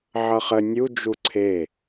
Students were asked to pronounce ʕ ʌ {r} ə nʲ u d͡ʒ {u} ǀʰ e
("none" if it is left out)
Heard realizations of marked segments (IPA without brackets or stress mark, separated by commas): χ, u